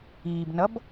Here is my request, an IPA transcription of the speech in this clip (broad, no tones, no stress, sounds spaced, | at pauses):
iː b n ʌ b